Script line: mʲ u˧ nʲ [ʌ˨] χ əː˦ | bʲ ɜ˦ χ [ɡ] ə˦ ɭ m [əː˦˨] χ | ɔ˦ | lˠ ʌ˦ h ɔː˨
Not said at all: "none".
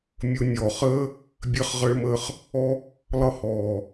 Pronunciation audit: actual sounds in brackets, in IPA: ɔ˨, ʁ, əː˦˨

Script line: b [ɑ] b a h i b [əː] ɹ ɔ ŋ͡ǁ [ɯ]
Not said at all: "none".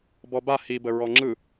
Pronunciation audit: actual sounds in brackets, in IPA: ɔ, ə, ɯ

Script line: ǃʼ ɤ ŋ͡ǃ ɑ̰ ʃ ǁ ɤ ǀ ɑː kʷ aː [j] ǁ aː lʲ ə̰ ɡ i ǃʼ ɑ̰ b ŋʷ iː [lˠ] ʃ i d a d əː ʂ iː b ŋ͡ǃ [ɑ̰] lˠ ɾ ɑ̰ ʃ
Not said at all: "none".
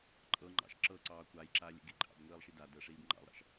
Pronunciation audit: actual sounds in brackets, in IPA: j, lˠ, ɑ̰

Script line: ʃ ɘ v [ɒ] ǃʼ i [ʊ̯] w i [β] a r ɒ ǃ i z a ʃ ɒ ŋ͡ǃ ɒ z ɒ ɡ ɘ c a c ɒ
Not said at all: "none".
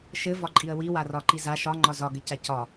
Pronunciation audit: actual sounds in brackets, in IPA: ɒ, ə̯, w

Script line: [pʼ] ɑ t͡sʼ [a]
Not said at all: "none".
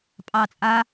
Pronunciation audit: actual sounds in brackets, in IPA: pʼ, a

